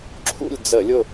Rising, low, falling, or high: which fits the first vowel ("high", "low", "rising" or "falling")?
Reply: falling